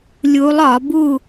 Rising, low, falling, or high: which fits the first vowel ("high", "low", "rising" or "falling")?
rising